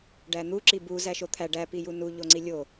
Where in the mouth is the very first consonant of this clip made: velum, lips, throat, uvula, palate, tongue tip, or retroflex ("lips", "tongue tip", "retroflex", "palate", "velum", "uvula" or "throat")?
retroflex